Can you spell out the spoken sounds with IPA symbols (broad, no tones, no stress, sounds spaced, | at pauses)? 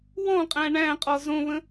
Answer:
w ɔ̃ qʼ æ̃ ɳ æ̃ qʼ ɔ z õ β ə̃